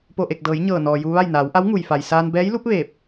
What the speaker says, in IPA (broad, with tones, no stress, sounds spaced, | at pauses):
p o˧˩ ʔ e˧˩ k̚ d ɤː˩˧ j ɲ ɤː˧˩ n ɔː˩ j u˧ ʋ a˥˨ j n aː˩˧ w ʔ a˧˥ w ŋ u˩ j f a˩ j s aː˧ n b ɛː˧˥ j l u˧˥ p̚ ʋ eː˧˩ p̚